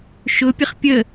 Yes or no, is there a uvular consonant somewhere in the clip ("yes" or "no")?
yes